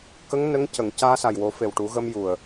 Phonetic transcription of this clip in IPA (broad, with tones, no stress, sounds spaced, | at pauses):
k ə˧˥ ŋ n ə˧˥ ŋ c ə˨˩˨ ŋ c aː˧ s a˨˩ j w o˨˩˦ f e˨˩ w ʈ u˨˩˦ ɣ ə˧ m j u˨˩ ə̯